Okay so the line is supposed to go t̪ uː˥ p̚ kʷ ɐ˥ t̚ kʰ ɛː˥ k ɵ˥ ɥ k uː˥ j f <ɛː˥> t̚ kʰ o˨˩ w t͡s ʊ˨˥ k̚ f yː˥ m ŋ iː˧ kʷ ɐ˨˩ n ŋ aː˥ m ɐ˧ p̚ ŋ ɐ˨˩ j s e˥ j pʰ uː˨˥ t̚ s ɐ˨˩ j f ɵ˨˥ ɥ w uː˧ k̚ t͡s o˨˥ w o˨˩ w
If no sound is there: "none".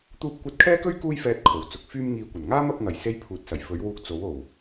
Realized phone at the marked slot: ɛː˧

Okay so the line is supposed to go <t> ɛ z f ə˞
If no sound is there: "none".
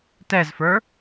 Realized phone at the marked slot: t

